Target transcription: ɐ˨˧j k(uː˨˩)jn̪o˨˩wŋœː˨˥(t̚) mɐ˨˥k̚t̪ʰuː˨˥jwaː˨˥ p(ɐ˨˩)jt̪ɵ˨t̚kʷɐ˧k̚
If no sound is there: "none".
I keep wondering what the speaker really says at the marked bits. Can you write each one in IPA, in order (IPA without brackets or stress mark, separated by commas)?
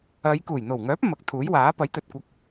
uː˨˩, p̚, ɐ˨˥